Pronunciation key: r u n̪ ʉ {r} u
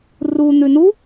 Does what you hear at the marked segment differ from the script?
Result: yes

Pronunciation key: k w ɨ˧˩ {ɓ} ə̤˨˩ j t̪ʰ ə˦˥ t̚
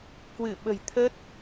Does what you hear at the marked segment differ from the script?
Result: no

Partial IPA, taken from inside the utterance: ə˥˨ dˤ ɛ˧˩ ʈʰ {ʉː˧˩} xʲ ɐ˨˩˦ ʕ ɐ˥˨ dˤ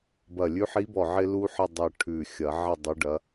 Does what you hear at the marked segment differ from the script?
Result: no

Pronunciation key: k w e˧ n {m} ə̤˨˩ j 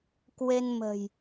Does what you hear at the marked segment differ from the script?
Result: no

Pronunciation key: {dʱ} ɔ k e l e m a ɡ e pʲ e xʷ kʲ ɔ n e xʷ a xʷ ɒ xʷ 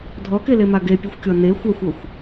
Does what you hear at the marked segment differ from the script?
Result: no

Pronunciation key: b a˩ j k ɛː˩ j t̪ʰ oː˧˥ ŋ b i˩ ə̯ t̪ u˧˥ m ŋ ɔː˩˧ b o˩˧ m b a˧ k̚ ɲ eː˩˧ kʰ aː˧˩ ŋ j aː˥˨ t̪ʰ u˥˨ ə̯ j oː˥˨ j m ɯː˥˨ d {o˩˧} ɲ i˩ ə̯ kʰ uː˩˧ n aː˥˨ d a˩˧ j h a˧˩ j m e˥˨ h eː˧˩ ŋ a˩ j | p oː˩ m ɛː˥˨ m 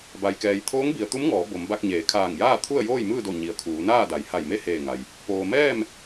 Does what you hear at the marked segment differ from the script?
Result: yes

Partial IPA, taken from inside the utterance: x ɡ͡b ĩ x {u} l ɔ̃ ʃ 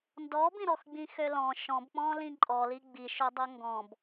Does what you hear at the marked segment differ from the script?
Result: yes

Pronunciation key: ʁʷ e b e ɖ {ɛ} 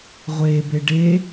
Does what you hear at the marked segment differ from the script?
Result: yes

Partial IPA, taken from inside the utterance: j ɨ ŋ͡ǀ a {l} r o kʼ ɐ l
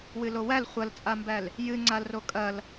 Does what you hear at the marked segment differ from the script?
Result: no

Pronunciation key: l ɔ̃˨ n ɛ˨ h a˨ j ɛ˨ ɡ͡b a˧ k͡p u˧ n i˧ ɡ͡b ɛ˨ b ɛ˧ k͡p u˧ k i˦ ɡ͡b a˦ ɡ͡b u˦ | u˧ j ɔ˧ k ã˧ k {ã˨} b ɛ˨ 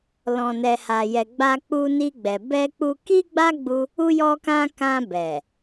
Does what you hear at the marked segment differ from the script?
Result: yes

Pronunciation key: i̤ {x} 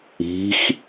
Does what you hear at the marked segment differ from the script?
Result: no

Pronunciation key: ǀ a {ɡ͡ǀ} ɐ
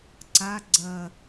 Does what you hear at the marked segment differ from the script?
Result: no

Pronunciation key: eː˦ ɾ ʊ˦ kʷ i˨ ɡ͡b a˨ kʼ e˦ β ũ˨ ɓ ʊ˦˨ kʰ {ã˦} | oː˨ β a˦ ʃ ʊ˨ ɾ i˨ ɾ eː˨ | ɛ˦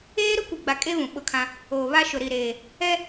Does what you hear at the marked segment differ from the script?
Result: no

